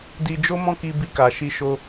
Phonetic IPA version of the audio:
d i˧ d͡ʒ o˦ m ɔ̃˦ k i˧ b i˧ k a˨ ʃ i˧ ʃ o˧

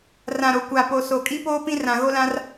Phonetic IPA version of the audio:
r ã˨ ɾ o˨ kʷ a˨ p o˨ s o˨ kʼ i˦ p oː˦ p ĩ˦ r ã˨ ɣ o˦ l ã˦ r

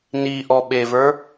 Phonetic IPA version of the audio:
n i ʔ ɔ ɓ e v ə˞

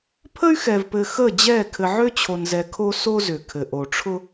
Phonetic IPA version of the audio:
pʰ ə˦ y̯ x ɛ˨ v p ɘ˨ x ə˦˨ d͡ʑ ɛ˦˨ kʰ ɘ˨ ʕ ø˦ t͡ɕʰ o˨ n z ɛ˨ kʰ o˦ s o˦ z ʏ˨ kʰ ɘ˨ ʔ o˨ ʈ͡ʂʰ ʊ˦

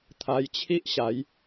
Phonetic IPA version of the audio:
t̪ʰ a˧ j t͡ɕʰ i˦ ʔ ɕ a˨˦ j

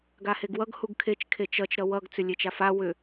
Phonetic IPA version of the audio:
ɡ a h e ɡ w ʌ ɡ h u ɡ kʰ e t͡ʃ kʰ e t͡ʃ ʌ t͡ʃ ɾ ʌ w ʌ ɡ t͡s ʏ lʲ e t͡ʃ a f a w ʏ

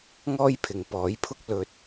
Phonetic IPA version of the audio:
ŋ ɔː˥ j pʰ ɪ˨ ŋ p ɔː˨˥ j pʰ ʊ˥ k̚ l ɵ˧ t̚

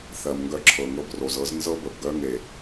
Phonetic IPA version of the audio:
θ ɜ˨ m ŋ ɡ œ˧ ǁʰ ɤ˨ ŋ ɤ˧ b r o˨ z ɤ˨˦ z n z ɤ˦ b ə˨ b ɡ œ˦ ŋ e˨

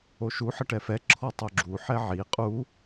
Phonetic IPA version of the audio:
o ʃ u ħ ə ʈ ɛ f ɛ ǁʰ ɔ tˤ o ɡ͡ǁ u ħ ɛ ʕ i qʼ u

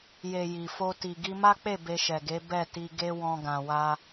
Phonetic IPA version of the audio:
j e˨ j i˨ f o˧ t i˨ ɡ i˧ m a˦ k͡p e˦˨ b e˧ ʃ ɛ˨ ɡ e˨˦ b ɛ˦˨ t i˧ ɡ e˧ w ɔ̃˧ ɡ ã˨ w a˧

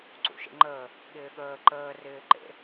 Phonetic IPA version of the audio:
ǀ ṵ ʃ ḛ ŋ͡ǃ əː | ɠ ɪː ɠ əː ǃ əː r ɪː ǃ ḛ

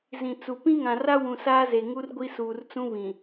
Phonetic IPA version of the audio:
z ĩ˨ t͡s u˨ p ĩ˦ ŋ ã˨ r a˦ w ũ˨ s aː˦ z e˨ ŋ u˦ r ɡʷ i˦ s uː˨ r t͡s ũ˦ β ĩ˨

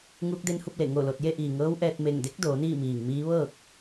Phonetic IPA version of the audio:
ŋ uː˧˥ k̚ d e˧˥ n h u˥˨ p̚ l e˧˩ ŋ o˧˩ l o˧˩ t̚ j e˥˨ ʔ iː˩ ŋ ɤː˧˥ w ʔ ɛː˧ t̚ m e˧˩ ŋ d e˧˥ k̚ d oː˩˧ n iː˥˨ m iː˩ ŋ m iː˧˥ ʋ ɤː˥˨ k̚

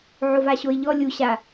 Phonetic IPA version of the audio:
ʕ o v a ɕ o ɪ̯ ʎ ɔ lʲ u ɕ a

